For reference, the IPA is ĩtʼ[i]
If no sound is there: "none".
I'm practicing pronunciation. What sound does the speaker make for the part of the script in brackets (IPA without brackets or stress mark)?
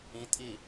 i